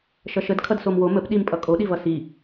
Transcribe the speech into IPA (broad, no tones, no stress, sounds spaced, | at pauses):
ʃ ʌ ʃ ə d kʰ ʌ d s o m w o m ə p ɗ i m pʼ ʌ kʼ o ɗ i v ʌ s i